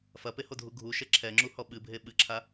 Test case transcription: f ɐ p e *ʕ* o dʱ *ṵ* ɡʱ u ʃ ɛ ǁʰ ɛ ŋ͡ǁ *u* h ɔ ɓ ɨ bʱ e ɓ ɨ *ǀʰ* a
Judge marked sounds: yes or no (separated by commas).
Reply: no, no, yes, no